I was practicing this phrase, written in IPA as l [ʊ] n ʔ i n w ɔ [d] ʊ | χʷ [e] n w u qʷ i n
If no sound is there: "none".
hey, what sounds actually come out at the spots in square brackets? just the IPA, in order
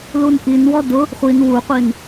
u, d, i

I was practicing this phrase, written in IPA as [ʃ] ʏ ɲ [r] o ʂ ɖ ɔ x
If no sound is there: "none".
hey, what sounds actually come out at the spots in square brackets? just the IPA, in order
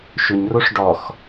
ʃ, r

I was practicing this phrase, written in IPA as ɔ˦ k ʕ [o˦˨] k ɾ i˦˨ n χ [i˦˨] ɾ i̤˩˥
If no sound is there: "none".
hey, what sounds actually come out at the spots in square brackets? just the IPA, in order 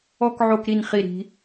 o˦˨, i˦

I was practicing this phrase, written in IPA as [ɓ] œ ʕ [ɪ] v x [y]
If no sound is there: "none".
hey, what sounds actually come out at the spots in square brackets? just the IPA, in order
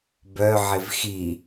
b, ɪ, i

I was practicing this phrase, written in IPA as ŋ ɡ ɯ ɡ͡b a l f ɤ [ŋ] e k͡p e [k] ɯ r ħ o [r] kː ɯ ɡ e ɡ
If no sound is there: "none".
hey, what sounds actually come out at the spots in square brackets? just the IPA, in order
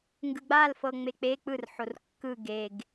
ŋ͡m, k͡p, r

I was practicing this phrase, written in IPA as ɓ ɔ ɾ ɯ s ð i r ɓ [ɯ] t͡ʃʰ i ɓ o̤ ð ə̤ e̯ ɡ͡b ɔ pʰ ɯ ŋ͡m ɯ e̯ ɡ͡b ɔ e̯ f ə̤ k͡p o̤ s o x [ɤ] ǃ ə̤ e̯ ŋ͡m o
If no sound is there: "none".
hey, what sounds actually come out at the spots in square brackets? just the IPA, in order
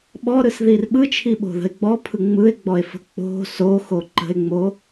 ɯ, o

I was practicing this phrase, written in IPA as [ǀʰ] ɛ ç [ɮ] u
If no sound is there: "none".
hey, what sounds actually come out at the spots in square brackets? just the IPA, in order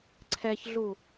ǀʰ, ɮ

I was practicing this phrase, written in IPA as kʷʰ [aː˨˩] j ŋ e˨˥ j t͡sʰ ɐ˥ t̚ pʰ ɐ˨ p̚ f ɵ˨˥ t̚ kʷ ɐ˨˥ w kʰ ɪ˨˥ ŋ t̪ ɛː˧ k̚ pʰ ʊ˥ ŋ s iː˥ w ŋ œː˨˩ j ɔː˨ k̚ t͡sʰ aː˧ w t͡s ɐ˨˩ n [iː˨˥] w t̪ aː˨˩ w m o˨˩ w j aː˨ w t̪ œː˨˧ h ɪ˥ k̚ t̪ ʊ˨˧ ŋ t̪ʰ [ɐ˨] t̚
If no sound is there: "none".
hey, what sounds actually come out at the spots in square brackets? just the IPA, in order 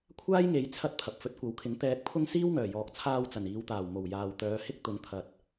aː˥, iː˨˧, ɐ˨

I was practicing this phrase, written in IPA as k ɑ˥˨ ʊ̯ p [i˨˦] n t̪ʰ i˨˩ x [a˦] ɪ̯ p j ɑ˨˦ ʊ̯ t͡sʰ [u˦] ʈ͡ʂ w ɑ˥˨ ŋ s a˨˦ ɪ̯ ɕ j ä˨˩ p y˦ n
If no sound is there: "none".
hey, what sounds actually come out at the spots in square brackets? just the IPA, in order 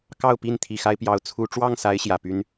i˥˨, a˦, u˦

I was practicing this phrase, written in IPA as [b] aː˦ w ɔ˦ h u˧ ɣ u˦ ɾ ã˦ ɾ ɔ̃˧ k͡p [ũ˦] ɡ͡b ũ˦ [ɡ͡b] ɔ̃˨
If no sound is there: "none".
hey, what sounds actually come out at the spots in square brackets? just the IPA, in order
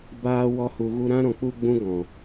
b, u˦, ɡ

